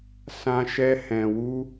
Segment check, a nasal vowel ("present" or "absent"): present